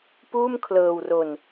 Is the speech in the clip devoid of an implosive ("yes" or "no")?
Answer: yes